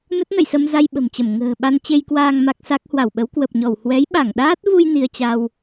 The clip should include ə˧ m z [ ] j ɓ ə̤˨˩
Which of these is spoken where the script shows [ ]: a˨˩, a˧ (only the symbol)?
a˧